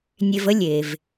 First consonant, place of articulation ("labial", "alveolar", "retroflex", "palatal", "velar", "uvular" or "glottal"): alveolar